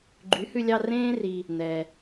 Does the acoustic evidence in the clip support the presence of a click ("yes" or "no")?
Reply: yes